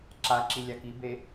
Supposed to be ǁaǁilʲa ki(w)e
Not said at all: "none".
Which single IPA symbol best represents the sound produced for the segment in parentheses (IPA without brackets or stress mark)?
b